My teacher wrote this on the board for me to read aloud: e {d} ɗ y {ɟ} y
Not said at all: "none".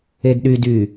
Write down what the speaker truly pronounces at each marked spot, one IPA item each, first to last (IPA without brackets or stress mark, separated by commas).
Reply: d, d